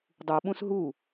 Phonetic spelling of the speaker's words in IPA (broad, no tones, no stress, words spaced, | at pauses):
dˤuɓũs ɦu